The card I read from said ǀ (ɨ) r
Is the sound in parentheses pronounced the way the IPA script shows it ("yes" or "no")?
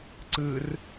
yes